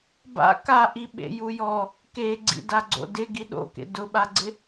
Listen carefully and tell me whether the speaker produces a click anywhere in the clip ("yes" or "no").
yes